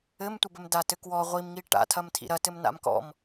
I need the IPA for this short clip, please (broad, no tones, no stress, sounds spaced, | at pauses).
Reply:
ɘ m tʷ ɘ b ɘ m d a t ɘ k w ɔ ʁʷ i m ŋ i ʈ a̰ tʰ ɐ m tʰ ḭ ɾ ɐ t ɘ m n a̰ m k ɔ̰ m